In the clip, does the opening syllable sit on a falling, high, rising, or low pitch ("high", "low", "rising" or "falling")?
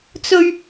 high